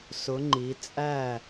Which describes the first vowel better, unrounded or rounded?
rounded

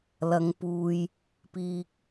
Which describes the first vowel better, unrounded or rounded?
unrounded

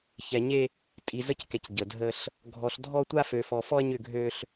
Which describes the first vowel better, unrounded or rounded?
unrounded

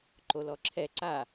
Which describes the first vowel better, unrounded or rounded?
rounded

